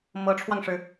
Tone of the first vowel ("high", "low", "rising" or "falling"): rising